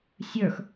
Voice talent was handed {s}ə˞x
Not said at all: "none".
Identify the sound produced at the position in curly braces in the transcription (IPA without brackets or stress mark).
sʲ